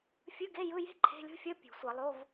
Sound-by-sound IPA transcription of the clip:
fʲ ɯ˧˥˧ ɡ e˧˥˧ j ɯ˧˥˧ j e̤˥ ǃʰ e̤˧˥˧ lʲ o̤˥ fʲ ʌ˧˥˧ pʲ ṳ˨˩˦ sʷ ʌ˨˩˦ lˠ o˧˥˧ v

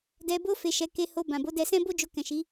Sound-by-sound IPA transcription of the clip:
d ɛ˧ b o˦ f e˧ ʃ ɛ˧ k e˧ h o˧ b ã˨ b o˨˦ d ɛ˧ s ɛ̃˦ b o˦ d͡ʒ o˧ k ɛ̃˨ ʃ i˨˦

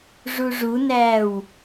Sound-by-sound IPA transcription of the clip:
ʐ u ʐ u n æː w

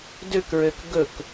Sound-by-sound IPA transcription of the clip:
d ø k ɹ ø k ɡ ɵ k

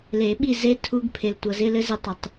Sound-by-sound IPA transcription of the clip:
l e˨˩˦ ɓ i˦˨ z e˦˥ tʰ u˦˥ ɡ pʰ e˨ l tʷ ɤ˨ z ɪ˧˥˧ l ɘ˦˥ z ɪ˦˨ tˤ u˨ tˤ

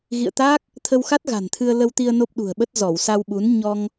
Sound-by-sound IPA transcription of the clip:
ɣ ḭ˧˨ ə̯ t̪ aː˦˥ k̚ | t̪ʰ ə˧ w x a˦˥ t̚ ɣ a̤˨˩ n t̪ʰ ɨ˧ ə̯ l ə˧ w t̪ i˧ ə̯ n o˦˥ p̚ ɗ ṳ˨˩ ə̯ ɓ ə˦˥ t̚ z ɔ˧˩ w s a˧ w ɓ u˨˦ n ɲ ɔ˧ ŋ

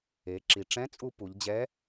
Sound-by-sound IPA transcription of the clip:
e˩˧ ǁ i˩ ʈ͡ʂ ɛ̃˧˥ t͡sʼ u˧ p u˩˧ ʎ d͡ʑ ɛ˧˥

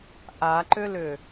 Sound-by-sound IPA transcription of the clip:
ʔ a ǃ ʏ l ʏ

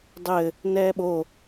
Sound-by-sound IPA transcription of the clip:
dˤ ɘ | n ɛː ɓ o

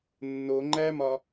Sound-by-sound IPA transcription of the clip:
nː o ŋ͡ǃ æ m ɒ

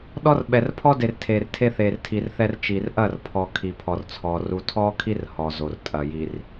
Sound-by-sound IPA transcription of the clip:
ɗ ɔ˦ r ɓ ɛ˨ r pʰ ɔ˦ d e˨ r tʰ e˨ r tʰ e˦ θ e˨ r tʰ i˨ r θ ɛ˦ r t͡ʃ i˨ r ʔ ɐ˦˨ r pʰ ɔ˨ kʰ i˨ pʰ ɔ˨ r t͡sʰ ɔ˨ r u˨ tʰ ɔ˦ kʰ i˦ r h ɔ˨ z o˨ r tʼ ɐ˨ j i˨ r

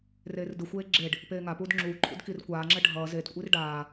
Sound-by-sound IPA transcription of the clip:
r eː r d ɯ xʷ eː ɡ͡ǁ e ɖ | p eː ŋ a p uː d ŋ͡ǁ uː ǃʰ ṵ d k i r kʷ aː ŋ͡ǁ ɛ ɖʱ ʌː z e d kʷʼ i r ɖ aː

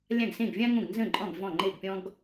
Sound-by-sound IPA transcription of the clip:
lʲ ã˥˩ ɡ s ẽ˥˩ ɡ vʲ ã˥ ŋ õ˥˩ ɡ n z ə̃˥˩ ǃʼ ɔ̃˥˩ ɡ v ɔ̃˥˩ ŋ͡ǃ e˥˩ ɡ pʲ ɔ̃˥ ɡ

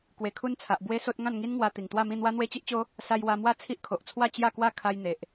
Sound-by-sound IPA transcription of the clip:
k w e˨˩ kʰ u˧ n t͡sʰ a˨ ʔ b w e˦ s o˦ t̚ ŋ ã˥˧ n ŋ i˦ n ŋ w a˧ t̪ i˨˩ ŋ t̪ w a˥˧ m ĩ˥˧ n̪ w a˦ n̪ w e˦ t͡ɕ i˦ ʔ t͡ɕ o˦ | s a˧ j w a˧ m w a˦ t͡sʰ i˦ ʔ kʰ o˨ ʔ t͡sʰ w a˥˧ t͡ɕ j a˥˧ k w a˥˧ kʰ a˧ j n̪ e˨ ʔ

